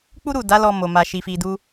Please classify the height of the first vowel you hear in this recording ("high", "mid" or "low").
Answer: high